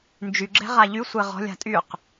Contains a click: yes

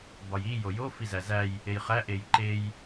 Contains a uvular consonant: yes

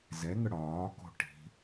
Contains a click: no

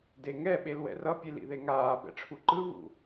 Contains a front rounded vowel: no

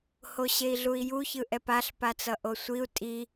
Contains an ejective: yes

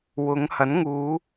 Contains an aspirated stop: no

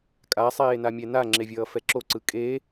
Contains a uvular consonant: no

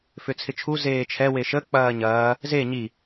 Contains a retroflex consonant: no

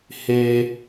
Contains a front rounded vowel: no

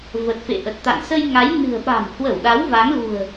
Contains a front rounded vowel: no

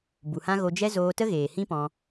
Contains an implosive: no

